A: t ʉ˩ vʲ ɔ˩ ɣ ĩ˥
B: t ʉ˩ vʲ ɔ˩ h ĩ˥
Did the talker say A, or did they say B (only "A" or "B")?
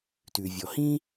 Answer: B